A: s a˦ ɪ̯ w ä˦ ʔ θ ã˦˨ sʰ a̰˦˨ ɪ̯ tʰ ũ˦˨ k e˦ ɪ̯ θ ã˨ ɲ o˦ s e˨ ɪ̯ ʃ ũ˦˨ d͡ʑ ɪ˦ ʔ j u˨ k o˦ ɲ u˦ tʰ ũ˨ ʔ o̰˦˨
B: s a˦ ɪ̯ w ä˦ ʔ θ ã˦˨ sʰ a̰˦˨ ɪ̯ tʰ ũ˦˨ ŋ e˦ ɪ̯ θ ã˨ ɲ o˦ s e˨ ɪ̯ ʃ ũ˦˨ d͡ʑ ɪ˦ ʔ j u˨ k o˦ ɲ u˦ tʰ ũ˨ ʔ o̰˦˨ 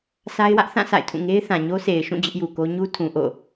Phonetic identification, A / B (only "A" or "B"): B